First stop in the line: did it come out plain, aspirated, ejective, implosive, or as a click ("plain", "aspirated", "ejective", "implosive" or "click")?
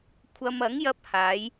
aspirated